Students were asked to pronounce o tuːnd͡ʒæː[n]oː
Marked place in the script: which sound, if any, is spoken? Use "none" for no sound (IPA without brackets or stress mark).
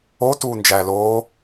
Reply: l